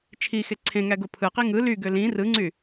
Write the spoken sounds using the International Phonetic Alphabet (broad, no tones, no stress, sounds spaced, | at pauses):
t͡ʃʰ i x e ǀʰ ẽ ŋ æ ɡ o pʰ ɯ q i ŋ ɯ l y ɡ ø l ĩ r ɯ ŋ͡ǀ y